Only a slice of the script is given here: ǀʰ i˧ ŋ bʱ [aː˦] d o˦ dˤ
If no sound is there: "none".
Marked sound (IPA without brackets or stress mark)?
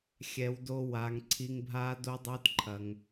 aː˦